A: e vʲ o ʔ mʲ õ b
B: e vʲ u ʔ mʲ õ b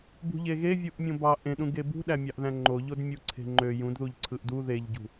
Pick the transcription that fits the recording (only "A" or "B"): B